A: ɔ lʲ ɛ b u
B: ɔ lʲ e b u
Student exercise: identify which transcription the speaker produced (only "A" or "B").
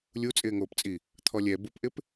A